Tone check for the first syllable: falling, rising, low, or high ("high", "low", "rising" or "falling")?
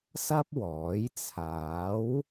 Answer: high